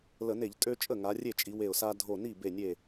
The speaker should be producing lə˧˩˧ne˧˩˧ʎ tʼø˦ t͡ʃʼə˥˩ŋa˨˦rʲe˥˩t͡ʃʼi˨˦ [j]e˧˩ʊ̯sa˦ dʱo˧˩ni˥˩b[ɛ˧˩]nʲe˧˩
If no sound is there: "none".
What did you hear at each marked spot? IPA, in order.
w, e˧˩

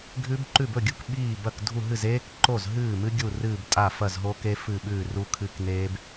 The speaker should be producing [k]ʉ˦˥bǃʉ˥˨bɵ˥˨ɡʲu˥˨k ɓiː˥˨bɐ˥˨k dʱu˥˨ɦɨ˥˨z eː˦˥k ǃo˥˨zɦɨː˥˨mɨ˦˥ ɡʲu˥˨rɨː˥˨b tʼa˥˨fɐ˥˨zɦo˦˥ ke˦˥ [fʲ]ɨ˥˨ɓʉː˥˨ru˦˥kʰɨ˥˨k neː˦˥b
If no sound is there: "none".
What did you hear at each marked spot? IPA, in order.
ɡʱ, f

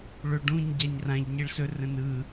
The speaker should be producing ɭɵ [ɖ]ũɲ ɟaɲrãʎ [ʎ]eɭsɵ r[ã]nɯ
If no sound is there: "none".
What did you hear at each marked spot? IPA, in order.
ɖ, ɲ, ə̃

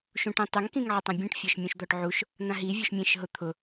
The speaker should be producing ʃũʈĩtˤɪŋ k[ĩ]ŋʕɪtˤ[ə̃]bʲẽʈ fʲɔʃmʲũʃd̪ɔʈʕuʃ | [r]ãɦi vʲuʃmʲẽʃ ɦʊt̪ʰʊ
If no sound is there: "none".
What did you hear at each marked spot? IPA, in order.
ĩ, ã, n̪

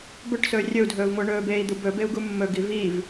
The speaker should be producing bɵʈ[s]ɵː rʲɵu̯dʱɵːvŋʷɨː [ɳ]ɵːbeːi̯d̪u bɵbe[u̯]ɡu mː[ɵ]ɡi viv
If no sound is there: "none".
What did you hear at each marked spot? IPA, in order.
s, ɳ, u̯, ɵ

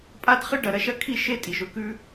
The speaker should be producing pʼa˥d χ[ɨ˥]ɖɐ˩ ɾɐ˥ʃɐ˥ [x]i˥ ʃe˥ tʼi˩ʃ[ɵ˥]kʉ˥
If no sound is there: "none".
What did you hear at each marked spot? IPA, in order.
ɨ˥, kʰ, ɵ˥

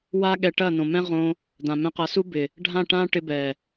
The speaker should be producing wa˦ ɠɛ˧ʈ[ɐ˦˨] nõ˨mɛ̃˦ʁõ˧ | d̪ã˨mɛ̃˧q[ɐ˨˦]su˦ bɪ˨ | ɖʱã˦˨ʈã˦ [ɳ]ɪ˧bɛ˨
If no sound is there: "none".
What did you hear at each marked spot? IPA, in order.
ɐ˦˨, ɐ˨˦, ʈ

